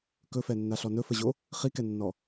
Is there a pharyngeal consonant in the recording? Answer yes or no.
no